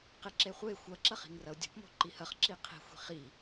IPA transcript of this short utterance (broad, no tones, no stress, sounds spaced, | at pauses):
q e ǁ e χʷ e xʷ ɐ ǁ ɐ χ i̤ ŋ r ɐ ʊ̯ dʲ o̤ p m o̤ ǃ i h ɐ χ ǁ i qʰ i̤ xʷ i̤ χ i